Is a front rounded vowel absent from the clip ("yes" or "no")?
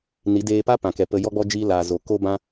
yes